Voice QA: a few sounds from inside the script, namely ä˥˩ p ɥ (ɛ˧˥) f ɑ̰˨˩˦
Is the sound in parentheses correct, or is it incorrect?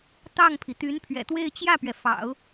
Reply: incorrect: ɛ˩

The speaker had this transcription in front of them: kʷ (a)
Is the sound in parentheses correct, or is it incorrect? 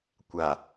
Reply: correct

